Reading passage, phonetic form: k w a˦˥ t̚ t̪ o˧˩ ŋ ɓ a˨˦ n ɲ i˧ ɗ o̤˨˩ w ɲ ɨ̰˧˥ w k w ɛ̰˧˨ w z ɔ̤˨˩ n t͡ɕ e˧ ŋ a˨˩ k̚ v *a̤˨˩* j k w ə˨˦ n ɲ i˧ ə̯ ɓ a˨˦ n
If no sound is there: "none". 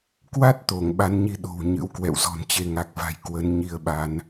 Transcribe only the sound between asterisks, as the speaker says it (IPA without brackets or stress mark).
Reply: a̤˨˩